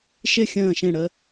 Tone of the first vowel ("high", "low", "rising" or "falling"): falling